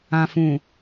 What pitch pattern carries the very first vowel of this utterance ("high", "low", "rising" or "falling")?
low